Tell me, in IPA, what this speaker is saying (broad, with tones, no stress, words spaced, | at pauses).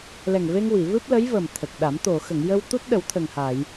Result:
lɛ˨˩ŋ ve˧ŋwi˨˩˨ vɨ˦˥p̚lə˧˥j və˨˩m t̪ʰə˨˩k̚ɗa˨˩˦m t̪o˨˩˨ xə˨˩˨ŋjə˧wt̪u˦˥t̚ ɗə˨˩˦wt̪ʰə˨˩ŋha˨˩˨j